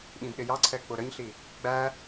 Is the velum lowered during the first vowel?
yes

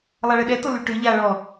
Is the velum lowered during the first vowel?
no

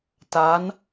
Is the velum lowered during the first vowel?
no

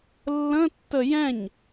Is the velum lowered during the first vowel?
yes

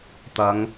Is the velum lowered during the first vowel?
no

